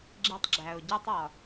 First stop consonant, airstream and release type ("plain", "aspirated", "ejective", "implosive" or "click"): click